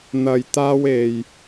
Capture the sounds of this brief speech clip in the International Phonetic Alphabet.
n̪ ɐ˧ j t̪ aː˥ w e˧ j

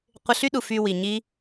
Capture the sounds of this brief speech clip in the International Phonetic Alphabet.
qʷ ɪ˧ ɬ y˦ ɗ u˨ f y˨ w i˨ ɲ i˦

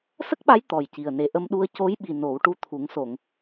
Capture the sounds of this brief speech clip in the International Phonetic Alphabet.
s ə˦˥ k̚ ɓ a˧˥ j t̪ ɔ˨˩ j c i˨˩ ə̯ n e˨˩ ʔ ə˧ m ɗ u˧ ə̯ c o˧˥ j ɓ i˨˩ n o˨˩˦ w ʈ u˧ t̪ʰ u˨˩˦ ŋ s o˨˩˨ ŋ

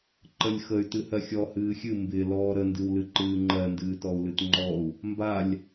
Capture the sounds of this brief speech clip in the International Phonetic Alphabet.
ǃ ə lʲ x ə y̯ t ɨ h ɜ xʲ ɔ h ɨː xʲ ɨ m b ɪ l ɔː ɾ ə n d ɨ w l ɨ ǃ ɨː ŋ͡ǃ ɜ n d ɨː t ɔ u̯ l ɨ t ŋ͡ǃ ɔ u̯ | m b a lʲ

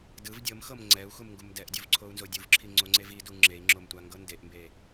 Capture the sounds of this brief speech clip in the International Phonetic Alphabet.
d ɯ v dʲ ɤ m x ɤ m ŋ͡ǀ ɛ u̯ x u m ŋ ɡ u m d ɛ ʔ dʲ o v ǀʰ o u̯ n z o dʲ u v ǁʰ i ŋ͡ǀ o ŋ͡ǀ e v i d u ŋ͡ǁ e i̯ ŋ͡ǁ o m tʷ a ŋ ɡ ɤ n d e ʔ m b e

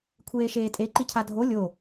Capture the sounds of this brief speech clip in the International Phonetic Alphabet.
kʷʰ eː ʃ eː tʼ e ǃ i cʰ a dʱ o lʲ o

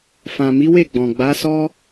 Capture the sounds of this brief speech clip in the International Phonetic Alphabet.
f ã˨ m i˨˦ w e˦˨ ɡ͡b ɔ̃˨ ɡ͡b a˨˦ s ɔ˦

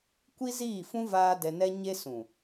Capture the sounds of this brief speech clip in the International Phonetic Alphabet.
kʷ i˦ z iː˦˨ f ũ˦ v aː˦ d ɛ˧ n ɛ˦ ɲ e˦ s ũ˨

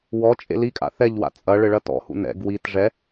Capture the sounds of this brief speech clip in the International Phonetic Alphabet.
w ɔ t͡ʃʼ ḛ l i kʼ a̰ θ ɛ ʎ w a̰ t͡sʼ ɐ ɭ ɘ ɭ ɐ t ɔ̰ h ṵ n ɛ̰ ɡ w i t ʐ ɛ

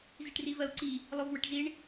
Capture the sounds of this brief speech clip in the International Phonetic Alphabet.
z i ʈ r i v ɜ u̯ ǀ i | lˠ o v w ə ʈ z i ɳ

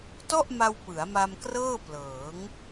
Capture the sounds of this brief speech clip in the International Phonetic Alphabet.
t ɔ˥˩ ʔ m a˧ w p ɯ˩˦ a̯ m a˧ m k r ɤː˥˩ p l ɤː˩˦ ŋ

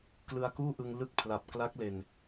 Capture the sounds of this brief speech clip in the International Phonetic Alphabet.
k l ɯ˧ a̯ k uː˥˩ ʔ ɯ˧ ŋ l ɯ˦˥ k̚ pʰ l a˨˩ p̚ k l a˦˥ k̚ l e˧ n

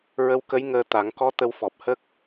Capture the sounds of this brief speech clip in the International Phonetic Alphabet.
ɹ ə˧˥ w k ə˧˥ j ŋ əː˧ t̪ a˨˩˦ ŋ k ɔ˧˥ t̪ ə˧ w f ɔ˨˩ p̚ h ə˦˥ k̚

